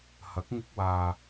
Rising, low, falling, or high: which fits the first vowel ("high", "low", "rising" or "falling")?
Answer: rising